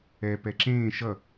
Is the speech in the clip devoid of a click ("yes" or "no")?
no